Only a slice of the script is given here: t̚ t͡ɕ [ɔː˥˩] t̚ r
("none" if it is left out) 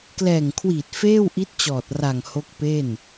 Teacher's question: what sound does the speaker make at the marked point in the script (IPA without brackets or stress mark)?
ɔː˨˩